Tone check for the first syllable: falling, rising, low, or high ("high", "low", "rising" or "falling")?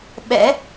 rising